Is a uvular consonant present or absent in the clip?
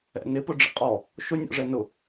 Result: present